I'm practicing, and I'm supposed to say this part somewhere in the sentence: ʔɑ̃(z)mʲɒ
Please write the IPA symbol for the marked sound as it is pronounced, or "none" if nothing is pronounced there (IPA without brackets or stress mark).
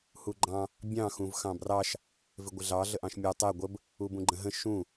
ʃ